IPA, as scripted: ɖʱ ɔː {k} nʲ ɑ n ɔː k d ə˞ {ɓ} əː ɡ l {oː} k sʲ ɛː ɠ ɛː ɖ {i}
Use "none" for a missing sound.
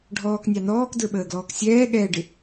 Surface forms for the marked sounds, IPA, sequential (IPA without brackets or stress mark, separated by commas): k, ɓ, ɔː, ɪ